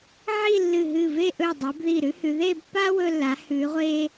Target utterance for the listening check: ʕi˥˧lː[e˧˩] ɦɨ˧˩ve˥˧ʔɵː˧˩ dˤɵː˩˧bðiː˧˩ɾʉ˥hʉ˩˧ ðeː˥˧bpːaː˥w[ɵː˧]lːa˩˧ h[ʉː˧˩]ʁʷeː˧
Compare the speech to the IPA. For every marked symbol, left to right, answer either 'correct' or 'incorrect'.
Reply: incorrect: ɨ˧˩, correct, incorrect: ʉː˩˧

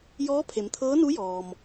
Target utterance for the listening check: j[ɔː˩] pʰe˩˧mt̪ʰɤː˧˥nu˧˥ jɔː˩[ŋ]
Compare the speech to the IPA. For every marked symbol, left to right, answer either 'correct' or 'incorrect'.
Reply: incorrect: ɔː˧˥, incorrect: m

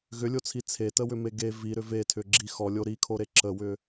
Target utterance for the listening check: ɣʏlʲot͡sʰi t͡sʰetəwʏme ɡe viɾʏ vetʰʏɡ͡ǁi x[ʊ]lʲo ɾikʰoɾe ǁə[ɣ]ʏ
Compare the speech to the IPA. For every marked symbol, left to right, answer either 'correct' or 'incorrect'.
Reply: incorrect: ɔ, incorrect: w

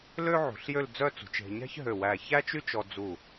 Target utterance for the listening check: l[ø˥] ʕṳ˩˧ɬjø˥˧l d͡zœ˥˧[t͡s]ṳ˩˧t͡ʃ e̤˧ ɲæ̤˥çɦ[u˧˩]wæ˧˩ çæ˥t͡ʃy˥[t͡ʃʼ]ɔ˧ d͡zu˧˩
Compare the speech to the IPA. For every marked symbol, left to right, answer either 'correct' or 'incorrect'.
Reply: correct, correct, incorrect: ø˧˩, incorrect: t͡ʃ

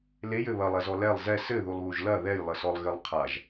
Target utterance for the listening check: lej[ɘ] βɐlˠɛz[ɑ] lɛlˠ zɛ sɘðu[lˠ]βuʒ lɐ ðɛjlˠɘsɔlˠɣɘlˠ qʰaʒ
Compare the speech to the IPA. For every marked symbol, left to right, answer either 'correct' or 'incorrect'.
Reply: correct, incorrect: ɔ, correct

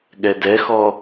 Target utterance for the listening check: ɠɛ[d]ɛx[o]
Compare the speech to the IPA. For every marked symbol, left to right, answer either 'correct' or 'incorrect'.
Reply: correct, incorrect: ɔ

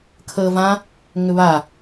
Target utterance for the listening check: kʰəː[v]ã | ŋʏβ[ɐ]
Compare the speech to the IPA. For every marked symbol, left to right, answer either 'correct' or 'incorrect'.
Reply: correct, incorrect: a

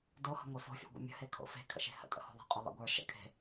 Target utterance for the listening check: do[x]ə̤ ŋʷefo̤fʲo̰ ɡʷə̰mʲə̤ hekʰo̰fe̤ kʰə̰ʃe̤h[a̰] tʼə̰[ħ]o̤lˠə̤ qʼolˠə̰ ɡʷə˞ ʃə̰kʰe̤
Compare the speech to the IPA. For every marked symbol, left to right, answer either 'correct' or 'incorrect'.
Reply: incorrect: h, incorrect: ə̰, incorrect: h

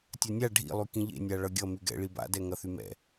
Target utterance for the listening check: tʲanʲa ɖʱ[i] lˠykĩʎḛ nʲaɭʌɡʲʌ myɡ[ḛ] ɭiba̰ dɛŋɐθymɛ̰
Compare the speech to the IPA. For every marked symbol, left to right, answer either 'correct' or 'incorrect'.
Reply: incorrect: ḭ, incorrect: ɛ̰

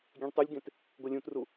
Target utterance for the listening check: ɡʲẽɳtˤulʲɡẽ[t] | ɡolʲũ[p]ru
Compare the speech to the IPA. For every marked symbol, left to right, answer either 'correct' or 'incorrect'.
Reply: correct, incorrect: t

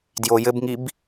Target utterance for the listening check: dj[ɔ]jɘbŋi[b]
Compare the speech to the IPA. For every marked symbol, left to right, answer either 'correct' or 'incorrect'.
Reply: incorrect: o, correct

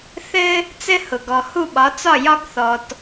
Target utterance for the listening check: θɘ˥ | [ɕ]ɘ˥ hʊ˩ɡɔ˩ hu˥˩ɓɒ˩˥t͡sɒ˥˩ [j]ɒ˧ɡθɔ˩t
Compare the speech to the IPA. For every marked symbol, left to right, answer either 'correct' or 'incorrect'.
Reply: incorrect: t͡s, correct

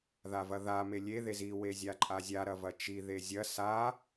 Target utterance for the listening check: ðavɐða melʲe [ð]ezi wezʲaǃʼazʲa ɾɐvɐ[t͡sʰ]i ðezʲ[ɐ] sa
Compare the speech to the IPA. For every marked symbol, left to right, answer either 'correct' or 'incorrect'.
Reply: correct, incorrect: t͡ʃ, correct

